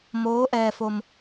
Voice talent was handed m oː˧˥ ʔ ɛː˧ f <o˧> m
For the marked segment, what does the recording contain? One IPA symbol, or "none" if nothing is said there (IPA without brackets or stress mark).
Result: o˧